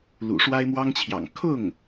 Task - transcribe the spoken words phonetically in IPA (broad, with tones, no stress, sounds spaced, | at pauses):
l ṵ˨˩ ʂ w a˥ ɪ̯ m w ɑ˥ ŋ t͡ɕʰ j ɑ̰˨˩ ŋ kʰ ʊ˥˩ ŋ